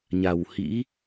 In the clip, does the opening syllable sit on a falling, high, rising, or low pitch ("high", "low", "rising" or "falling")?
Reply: low